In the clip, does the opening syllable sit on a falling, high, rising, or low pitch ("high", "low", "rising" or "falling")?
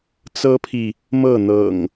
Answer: high